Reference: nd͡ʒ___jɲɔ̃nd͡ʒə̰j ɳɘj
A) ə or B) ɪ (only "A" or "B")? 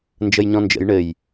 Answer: A